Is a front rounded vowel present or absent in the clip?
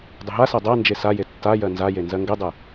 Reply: absent